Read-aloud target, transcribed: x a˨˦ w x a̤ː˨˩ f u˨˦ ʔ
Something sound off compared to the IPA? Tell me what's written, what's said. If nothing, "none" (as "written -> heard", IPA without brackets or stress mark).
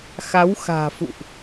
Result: u˨˦ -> ṵ˧˨